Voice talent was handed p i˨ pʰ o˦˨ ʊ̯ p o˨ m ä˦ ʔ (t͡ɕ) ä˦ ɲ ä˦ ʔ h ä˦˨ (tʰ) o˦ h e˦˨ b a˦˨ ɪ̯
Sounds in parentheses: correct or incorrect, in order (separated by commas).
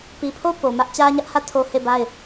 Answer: correct, correct